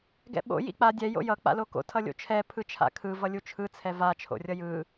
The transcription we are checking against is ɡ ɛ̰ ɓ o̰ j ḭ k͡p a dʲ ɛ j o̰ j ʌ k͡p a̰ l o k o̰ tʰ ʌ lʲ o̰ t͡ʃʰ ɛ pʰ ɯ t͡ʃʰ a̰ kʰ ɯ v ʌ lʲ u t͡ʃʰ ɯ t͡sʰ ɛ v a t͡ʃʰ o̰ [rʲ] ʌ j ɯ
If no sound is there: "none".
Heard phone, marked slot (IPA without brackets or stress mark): rʲ